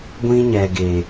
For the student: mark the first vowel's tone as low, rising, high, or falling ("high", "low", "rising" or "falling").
high